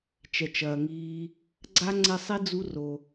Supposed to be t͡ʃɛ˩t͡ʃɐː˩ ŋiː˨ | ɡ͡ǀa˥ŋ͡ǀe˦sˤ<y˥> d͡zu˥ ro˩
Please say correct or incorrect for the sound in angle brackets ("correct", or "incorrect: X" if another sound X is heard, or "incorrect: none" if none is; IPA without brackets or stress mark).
incorrect: i˥